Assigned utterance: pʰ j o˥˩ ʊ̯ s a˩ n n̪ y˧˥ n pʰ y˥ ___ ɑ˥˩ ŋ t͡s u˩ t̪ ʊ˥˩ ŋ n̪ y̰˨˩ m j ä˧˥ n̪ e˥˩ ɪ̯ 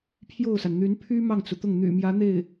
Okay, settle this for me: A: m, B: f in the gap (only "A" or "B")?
A